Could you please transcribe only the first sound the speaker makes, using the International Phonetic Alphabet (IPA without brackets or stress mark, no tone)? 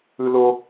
ɯ